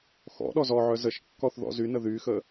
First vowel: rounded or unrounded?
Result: rounded